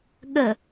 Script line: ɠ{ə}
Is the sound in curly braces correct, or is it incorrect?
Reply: correct